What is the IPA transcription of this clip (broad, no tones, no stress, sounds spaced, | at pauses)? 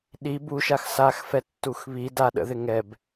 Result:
ɗ i b u ʃ a x s a x f ɛ tː u x β i d a ɗ ə̰ ð ɪ ŋ ɛ b